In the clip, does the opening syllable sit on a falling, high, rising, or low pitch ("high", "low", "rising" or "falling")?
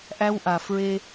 high